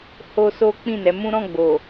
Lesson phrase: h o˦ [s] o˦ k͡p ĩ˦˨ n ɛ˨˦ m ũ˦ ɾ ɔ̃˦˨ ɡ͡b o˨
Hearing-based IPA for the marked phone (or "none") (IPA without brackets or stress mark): s